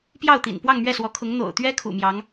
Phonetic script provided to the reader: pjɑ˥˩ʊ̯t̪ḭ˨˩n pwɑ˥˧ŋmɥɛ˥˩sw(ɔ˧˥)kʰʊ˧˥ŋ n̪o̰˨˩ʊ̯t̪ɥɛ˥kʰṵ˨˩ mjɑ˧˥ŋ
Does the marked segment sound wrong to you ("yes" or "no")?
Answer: no